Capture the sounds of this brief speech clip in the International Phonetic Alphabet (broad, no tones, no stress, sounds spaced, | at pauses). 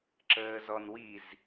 ǁ əː z ɔ n w i z